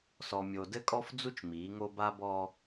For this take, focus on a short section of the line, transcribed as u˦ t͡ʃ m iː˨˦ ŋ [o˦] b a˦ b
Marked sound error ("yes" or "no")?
no